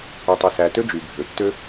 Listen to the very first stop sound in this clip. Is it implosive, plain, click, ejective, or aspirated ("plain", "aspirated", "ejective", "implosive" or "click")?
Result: plain